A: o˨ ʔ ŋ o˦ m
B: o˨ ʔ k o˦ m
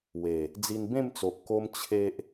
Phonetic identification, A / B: B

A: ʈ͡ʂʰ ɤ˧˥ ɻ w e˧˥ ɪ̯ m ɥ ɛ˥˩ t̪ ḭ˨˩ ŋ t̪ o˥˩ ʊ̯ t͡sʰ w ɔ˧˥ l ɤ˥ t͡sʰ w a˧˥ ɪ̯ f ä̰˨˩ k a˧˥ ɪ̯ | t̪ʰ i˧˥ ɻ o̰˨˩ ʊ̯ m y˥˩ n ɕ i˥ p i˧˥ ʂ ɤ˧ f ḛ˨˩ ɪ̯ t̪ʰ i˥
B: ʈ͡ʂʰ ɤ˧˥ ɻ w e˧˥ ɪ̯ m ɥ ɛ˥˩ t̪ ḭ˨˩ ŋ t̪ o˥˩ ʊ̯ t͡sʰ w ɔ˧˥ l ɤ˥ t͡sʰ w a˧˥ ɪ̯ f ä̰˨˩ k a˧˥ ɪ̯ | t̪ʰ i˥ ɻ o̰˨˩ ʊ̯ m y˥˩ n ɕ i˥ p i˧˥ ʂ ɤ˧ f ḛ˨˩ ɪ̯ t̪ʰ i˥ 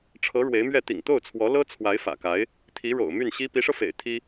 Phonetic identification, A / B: A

